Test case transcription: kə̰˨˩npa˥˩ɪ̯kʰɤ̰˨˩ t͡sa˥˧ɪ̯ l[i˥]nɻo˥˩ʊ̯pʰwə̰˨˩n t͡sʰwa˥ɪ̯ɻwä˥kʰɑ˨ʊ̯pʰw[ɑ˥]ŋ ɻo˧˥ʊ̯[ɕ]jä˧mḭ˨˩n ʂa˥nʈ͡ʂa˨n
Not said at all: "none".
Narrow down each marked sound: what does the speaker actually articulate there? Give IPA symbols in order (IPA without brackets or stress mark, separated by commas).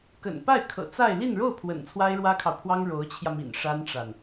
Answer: i˥˧, ɑ˥, t͡ɕʰ